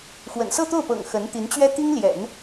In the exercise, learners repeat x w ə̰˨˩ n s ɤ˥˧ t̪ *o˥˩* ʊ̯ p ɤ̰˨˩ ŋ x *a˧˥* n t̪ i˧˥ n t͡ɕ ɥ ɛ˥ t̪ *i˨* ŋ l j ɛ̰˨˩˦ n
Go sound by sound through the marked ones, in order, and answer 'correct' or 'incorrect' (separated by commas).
correct, incorrect, incorrect